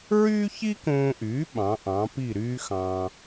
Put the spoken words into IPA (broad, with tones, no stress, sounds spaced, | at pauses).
ɹ yː˥ ç i˥ k õː˧ ʔ yː˩˥ ɓ ɑ̃˩˥ ʔ ɑ̃˩˥ p i˥˩ ɾ yː˥ x ɑ̃ː˧